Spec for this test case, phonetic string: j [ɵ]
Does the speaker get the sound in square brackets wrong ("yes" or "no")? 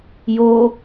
yes